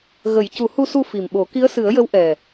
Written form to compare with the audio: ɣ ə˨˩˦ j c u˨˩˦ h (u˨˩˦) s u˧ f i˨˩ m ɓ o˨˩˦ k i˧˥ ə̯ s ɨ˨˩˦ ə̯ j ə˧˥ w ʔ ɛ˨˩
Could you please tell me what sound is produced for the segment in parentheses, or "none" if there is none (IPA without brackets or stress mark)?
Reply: u˧